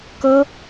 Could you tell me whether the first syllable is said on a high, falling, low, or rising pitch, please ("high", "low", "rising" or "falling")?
high